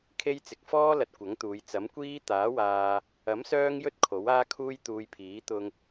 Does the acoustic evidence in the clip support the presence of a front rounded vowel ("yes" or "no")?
yes